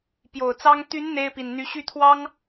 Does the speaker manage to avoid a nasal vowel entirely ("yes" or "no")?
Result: yes